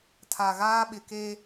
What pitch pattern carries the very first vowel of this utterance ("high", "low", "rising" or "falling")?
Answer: low